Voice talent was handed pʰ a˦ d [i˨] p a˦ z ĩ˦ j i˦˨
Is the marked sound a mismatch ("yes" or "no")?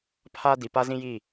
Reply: no